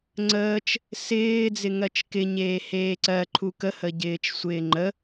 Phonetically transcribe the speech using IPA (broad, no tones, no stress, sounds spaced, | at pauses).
ŋ͡ǀ əː t͡ʃ | s ɪː d͡z ɪ ŋ ɜ t͡ʃ k ɪ ɲ eː h eː ǀ ɜ ǃʰ u k ə h ə ɟ ɪː t͡ʃ sʷ ɪː ŋ͡ǃ ə